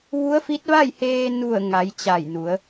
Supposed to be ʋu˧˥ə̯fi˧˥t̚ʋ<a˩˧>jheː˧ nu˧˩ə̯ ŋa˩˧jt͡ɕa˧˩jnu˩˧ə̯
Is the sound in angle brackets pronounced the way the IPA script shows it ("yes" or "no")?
no